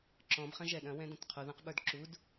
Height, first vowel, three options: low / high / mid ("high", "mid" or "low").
mid